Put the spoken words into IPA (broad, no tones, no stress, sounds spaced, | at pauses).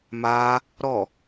m a | ɾ ɔ